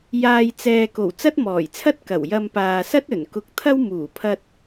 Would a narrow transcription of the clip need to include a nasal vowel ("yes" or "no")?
no